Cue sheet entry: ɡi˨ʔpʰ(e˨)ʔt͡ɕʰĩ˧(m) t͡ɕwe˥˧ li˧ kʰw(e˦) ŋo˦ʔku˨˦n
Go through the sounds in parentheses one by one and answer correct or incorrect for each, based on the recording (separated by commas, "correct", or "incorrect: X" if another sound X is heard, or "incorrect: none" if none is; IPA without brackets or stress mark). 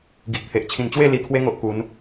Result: correct, incorrect: n, correct